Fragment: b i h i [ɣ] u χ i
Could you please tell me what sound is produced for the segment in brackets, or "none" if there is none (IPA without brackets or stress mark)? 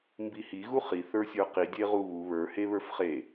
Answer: ɣ